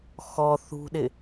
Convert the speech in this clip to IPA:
x ɔ θ ṳ ɗ ɪ

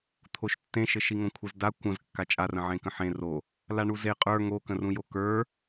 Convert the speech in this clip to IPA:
t̪ʰ o ʃ tː ẽ ʃ ɘ ʃ i ŋ õ kʷʰ ə z d a kʷ ə̃ z kː a t͡ʃʼ a r ə̃ ʕ ẽ k ə̃ ħ ẽ r o | l a ɳ u z e qʼ ə˞ ŋ o k ə̃ r ũ j o k ə˞

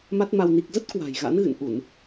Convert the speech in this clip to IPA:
m a˦˥ t̚ m a˧ w n i˨˩ k̚ z ə˦˥ t̚ k w a̤˨˩ j ɣ a̰˧˥ n ɣ ɨ̰˧˨ n ʔ u˧˩˨ n

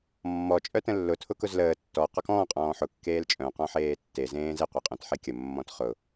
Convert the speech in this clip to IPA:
mː ɔ t͡ʃʼ œ t ə̃ lː ʊ tʰ ʊ k ʊ z l əː tː ɔ q ɔ k ɔ̃ː qʼ ɔ̃ː ħ ʊ kː eː l t͡ʃʼ œ̃ q ɔ̃ ħ eː tː e z ẽː z e qʷ e qʼ œ̃ t ħ e kʲ ə mː ɔ̃ t χ ʊ

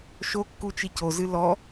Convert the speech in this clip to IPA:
ʃ o kː u t͡ʃ i c o z ɨ l ɔ

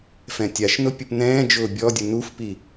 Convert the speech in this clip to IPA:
f ɛ̃ tʲ a ʃ n ʊ pʲ ʊ p n ɛ̃ː d͡ʒ ʊː bʲ ɔ dʲ ʊ n u f p i

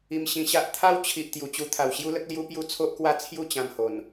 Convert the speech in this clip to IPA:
i˧ m ɕ ĩ˧ ɕ a˦ ʔ t̪ʰ a˦ w t͡ɕʰ i˨ ʔ t̪ j u˨˩ t͡ɕ u˧ t̪ʰ a˨˩ w ɕ j u˦ l ə˦ k̚ l j u˦ p j u˦ t͡sʰ o˦ ʔ k w a˦ t͡sʰ j u˥˧ t͡ɕ ã˧ m h o˨˩ n

